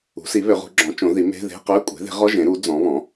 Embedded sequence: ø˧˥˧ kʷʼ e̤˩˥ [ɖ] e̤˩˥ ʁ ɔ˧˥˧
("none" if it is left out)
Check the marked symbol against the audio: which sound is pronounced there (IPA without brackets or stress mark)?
ð